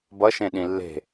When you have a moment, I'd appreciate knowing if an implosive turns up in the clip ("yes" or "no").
yes